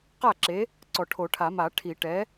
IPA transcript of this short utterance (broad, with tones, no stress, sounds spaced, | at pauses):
q a˥˩ ǁ e˨˥ | ǀ ɔ˨˩˦ ʈʰ o˨˩˦ ʈʰ a˨˩˦ m a˨˩˦ ʈʰ i˨˩˦ ʈ ɛ˨˥